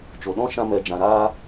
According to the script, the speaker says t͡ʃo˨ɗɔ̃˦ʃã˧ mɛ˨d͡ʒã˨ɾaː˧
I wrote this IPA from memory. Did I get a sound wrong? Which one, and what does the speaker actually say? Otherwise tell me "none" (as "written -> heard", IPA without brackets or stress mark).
none